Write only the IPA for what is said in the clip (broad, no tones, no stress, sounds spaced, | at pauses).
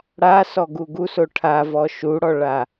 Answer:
ɽ a s ɔ ɡ u ɡ u s o ʈʰ a v ɔ ʃ u ɽ ɔ ɭ a